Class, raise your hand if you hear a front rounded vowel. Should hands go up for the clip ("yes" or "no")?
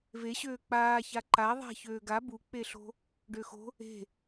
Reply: yes